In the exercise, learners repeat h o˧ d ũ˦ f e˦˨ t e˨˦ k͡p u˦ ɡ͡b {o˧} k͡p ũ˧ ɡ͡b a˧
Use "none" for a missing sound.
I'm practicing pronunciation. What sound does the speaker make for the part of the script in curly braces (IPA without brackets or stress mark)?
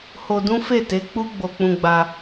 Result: o˧